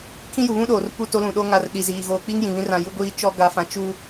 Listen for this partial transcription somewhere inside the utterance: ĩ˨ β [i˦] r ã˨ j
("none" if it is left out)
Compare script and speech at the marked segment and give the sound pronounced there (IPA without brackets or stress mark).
ĩ˦